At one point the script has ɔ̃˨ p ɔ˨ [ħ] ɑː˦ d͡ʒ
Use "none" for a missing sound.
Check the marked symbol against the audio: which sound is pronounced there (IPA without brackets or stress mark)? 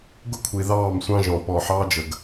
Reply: ħ